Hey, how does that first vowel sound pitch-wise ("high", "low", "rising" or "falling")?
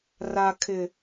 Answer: high